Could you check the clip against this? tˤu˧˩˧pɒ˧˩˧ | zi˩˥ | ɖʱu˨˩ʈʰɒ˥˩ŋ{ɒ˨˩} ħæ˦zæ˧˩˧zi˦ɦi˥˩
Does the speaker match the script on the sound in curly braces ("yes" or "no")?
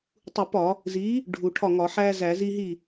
no